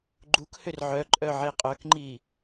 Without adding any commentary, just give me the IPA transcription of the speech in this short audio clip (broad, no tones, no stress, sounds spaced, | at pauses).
ɡ͡ǃ u k h ʏ r ʕ œ ǃʼ œ ʕ e qʼ œ k ŋ͡ǃ i